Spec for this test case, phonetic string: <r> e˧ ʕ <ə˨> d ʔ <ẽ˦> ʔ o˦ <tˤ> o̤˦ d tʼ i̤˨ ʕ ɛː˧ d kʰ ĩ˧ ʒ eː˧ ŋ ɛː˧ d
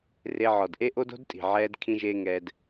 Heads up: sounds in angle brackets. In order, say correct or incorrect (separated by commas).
correct, incorrect, incorrect, incorrect